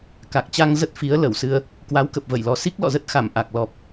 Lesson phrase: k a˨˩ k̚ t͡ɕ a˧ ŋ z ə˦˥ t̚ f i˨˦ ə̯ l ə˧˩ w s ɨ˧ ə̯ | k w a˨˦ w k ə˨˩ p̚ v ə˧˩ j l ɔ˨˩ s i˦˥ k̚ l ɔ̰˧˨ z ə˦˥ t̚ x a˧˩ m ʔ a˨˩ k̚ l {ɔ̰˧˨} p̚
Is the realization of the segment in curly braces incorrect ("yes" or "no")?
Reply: yes